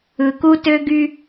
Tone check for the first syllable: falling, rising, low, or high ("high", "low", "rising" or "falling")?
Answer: low